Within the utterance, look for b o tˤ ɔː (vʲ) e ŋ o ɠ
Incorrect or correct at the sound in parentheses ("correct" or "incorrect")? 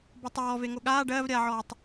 incorrect